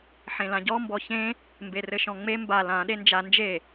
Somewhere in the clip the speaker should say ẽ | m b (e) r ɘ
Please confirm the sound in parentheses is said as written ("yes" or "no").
yes